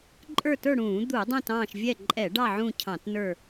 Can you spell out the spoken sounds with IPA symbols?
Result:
ǃʼə˞˦˨tə˞˦˨ɽũː˧˩˧ d̪u˧˩˧ dˤɛ̃˦˨tɑ̃ː˦˨ʃ vʲɛ˦˨ǃʼɛ˧˩˧ɖɑ˦˨ ʕũ˦˨cʰɑ̃˧˩˧tnə˞˦˨

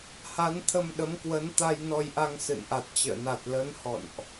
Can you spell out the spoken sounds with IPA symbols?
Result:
ha˨˦nt̪ʰə˧mɗə˨˦mkwə˨˦n t̪a˧jnɔ˧jʔa˧ŋ sɨ̰˧˨nʔa˨˩t̚t͡ɕə̰ː˧˨ na˨˩t̚lə˨˦n hɔ̰˧˨nʔ

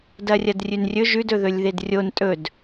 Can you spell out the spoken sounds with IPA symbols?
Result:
dɐrʲɐdrʲʉnrʲɵ ʒʉd ɵðɵlʲðedrʲon tʼɵd

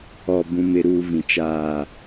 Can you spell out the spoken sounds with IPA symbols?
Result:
ɔ˨bũ˨mɪ˨ɾuː˨ vĩ˨t͡ʃaː˦˨

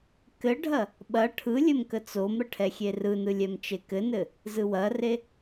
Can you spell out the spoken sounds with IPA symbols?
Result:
kɘɖʱɐ | ɓɐ ʈʰɯ lʲɘmkət͡somɾə ʈʰɛxʲerɯnɯ lʲɛmt͡ʃekɘnɘ | zɯwɐre

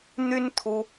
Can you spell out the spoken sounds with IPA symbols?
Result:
n̪y˦n t̪ʰu˦

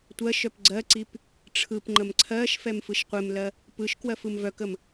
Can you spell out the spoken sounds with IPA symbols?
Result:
tʷɜ ʃœpɡ͡ǀɜǀip | ʈ͡ʂʰɯpŋ͡ǃəm ǀʰɜʃfɛm fɯʃqʷɪmlɜ | pɯʃkwɜf ɯmvœkəm

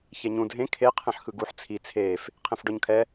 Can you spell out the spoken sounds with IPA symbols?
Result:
çɛɲũ dʱẽ kʰe qʰẽħxɯɡuħ t͡sʰi t͡sʰeːf | qʰẽfɖɔɲkʰɛ

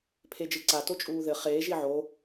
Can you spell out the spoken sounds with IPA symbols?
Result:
pʰed͡ʒɨǀa tot͡ʃʼuːðɘ χeːʒ iʕo

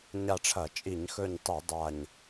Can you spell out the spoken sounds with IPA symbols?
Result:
ɲa˦˨ʈ͡ʂʰɐ˧˩˧ t͡ʃʼi˧˩˧ɲxɵ˦˨ɲtˤi˧˩˧ dˤa˦˨ɲ

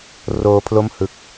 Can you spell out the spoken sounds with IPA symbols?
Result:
roː˦˥pʰlo˥˩m hɯ˨˩k̚

